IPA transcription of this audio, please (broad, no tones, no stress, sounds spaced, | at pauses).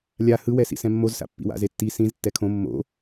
lʲ a h ɯ w ɛ s ḭ s ɛ̃ mː o z s a̰ pː ḭ w a̰ z e tː i s ĩ z tː ɛ kʰ õ mː o̰